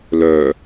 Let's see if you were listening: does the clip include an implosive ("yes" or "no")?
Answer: no